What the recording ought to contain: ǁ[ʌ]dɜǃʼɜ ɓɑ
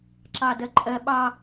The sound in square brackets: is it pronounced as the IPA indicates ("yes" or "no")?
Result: no